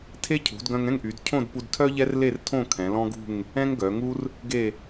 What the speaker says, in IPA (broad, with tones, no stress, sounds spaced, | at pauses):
tʰ e˥ cʰ ṳ˩˧ d ɡ œ̃˧ ŋ ɛ̃˥˧ ŋ ʔ y˩˧ d cʰ õ˥˧ d p u˧ d tʰ œ˥ ʎ ɛ˥ r l e˥˧ r tʰ õ˥˧ kʰ ɛ̃˩˧ l ɔ̃˥ ɡ ṳ˥˧ ŋ | ɛ̃˥ ŋ ɡ œ˩˧ ŋ u˥ r | ɡ e˥˧